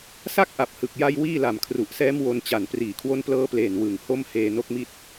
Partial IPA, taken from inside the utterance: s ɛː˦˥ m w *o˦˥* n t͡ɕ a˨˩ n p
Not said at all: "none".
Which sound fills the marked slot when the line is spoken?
o˧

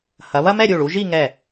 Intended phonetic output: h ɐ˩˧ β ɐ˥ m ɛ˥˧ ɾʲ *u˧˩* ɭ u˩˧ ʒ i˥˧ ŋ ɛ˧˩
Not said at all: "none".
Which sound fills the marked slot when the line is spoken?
u˧˩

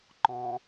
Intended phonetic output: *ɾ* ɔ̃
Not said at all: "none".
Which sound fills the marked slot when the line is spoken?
ǃ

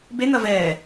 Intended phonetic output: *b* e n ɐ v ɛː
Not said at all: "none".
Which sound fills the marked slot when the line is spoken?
b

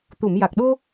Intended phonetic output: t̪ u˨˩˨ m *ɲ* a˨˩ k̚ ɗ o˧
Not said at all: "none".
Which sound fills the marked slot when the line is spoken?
j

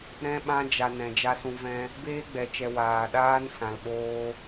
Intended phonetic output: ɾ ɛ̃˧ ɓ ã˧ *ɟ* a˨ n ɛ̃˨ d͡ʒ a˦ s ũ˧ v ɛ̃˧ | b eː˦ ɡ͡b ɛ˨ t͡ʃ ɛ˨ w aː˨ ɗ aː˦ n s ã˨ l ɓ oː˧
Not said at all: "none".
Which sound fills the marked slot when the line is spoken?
d͡ʒ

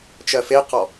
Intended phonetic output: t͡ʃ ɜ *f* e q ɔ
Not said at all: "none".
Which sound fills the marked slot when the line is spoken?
f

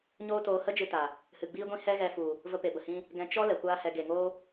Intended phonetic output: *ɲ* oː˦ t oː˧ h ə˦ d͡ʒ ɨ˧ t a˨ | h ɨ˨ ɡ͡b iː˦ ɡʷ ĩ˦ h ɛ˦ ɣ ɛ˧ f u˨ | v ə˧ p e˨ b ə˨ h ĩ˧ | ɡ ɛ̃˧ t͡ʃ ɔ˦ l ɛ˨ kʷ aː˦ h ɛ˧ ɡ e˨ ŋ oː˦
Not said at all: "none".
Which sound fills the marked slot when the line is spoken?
ɲ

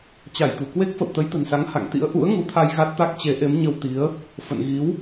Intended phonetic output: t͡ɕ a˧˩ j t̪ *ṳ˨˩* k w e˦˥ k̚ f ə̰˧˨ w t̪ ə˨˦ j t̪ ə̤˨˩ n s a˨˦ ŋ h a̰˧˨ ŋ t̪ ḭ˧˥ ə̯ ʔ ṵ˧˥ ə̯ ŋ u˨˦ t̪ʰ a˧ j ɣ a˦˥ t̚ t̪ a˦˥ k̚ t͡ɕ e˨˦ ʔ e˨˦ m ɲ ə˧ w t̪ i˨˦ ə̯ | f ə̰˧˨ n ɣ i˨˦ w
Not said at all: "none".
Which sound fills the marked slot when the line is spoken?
ṳ˨˩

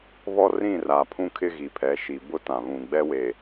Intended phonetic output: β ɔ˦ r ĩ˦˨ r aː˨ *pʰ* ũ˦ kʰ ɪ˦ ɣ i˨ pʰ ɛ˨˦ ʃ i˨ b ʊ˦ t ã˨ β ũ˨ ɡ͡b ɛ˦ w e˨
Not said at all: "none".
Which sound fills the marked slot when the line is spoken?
pʰ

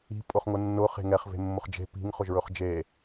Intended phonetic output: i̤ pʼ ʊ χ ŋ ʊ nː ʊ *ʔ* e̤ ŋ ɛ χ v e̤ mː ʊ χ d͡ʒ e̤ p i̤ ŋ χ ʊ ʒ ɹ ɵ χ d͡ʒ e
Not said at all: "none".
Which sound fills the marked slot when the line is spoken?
χ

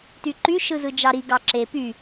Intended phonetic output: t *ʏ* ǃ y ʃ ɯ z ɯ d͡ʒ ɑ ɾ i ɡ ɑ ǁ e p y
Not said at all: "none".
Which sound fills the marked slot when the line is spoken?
y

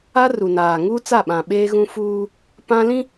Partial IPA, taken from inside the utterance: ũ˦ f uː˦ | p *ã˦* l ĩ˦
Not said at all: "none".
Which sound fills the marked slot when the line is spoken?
ã˦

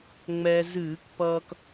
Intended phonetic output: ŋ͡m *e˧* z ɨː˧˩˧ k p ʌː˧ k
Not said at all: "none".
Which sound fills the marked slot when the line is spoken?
ɛ˧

